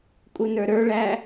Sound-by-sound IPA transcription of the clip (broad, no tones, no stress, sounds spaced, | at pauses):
kʼ u n ə˞ ɾ ə˞ ɭ æː